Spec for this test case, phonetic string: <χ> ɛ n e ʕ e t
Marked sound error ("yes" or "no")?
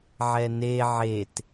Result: yes